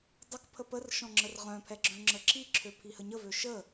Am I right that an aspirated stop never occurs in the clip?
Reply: no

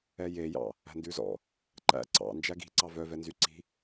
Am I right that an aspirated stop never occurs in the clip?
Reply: yes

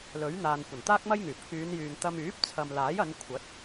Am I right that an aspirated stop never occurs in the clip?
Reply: no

